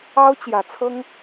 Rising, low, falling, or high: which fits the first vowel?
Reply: high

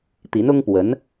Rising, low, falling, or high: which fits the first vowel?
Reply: rising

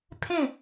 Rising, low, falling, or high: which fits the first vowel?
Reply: falling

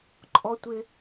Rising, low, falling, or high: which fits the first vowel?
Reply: high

